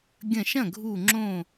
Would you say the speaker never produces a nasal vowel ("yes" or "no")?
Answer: no